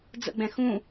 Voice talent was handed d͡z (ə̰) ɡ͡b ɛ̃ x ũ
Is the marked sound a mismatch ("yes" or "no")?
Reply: no